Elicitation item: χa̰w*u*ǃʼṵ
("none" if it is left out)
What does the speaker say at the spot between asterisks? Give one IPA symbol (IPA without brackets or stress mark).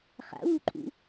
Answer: u